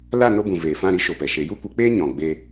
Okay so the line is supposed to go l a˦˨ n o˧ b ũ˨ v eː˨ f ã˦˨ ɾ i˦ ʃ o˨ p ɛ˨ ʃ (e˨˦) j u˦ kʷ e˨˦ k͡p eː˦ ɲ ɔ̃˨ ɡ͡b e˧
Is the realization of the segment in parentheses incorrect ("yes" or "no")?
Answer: no